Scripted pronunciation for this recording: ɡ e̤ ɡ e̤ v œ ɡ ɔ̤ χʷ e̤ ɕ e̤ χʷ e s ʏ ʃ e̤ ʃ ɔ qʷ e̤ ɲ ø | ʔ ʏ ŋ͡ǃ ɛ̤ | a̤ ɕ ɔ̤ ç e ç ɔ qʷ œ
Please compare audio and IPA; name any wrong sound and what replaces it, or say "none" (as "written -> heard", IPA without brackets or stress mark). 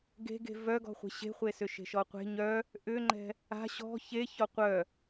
ø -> œ